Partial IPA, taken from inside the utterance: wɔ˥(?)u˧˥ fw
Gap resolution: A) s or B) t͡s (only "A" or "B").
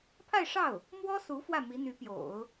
A